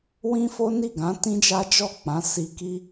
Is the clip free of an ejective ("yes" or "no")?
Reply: yes